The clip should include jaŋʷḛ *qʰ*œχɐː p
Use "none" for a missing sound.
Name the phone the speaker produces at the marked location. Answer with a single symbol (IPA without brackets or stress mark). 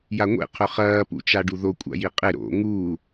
qʰ